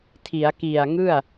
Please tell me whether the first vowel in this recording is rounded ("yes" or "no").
no